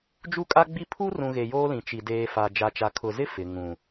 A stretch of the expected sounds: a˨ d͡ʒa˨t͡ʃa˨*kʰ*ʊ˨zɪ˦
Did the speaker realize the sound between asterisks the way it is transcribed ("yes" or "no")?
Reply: yes